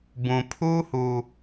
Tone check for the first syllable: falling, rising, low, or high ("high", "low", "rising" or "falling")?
low